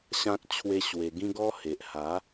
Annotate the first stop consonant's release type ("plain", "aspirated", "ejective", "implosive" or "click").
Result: plain